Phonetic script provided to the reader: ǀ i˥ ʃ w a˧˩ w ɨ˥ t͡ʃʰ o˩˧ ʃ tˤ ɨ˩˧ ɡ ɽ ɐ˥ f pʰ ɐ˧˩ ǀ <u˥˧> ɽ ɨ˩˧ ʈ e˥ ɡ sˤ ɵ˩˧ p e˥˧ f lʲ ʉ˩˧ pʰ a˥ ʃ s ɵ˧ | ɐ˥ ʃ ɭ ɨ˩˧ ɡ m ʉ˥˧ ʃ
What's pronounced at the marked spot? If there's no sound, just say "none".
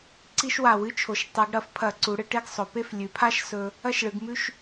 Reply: u˩˧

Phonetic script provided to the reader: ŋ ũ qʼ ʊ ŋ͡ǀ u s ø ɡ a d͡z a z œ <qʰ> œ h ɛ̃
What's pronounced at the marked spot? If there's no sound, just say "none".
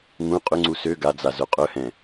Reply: qʼ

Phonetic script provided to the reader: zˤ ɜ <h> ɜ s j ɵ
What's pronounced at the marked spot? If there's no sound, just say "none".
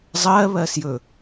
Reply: β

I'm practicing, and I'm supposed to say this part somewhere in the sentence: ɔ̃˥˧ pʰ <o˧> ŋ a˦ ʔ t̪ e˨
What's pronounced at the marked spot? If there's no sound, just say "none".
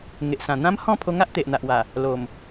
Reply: o˧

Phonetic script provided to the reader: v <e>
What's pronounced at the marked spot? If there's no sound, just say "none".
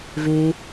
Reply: e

